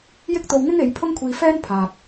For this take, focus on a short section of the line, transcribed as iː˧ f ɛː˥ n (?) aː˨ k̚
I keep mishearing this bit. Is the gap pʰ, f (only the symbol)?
pʰ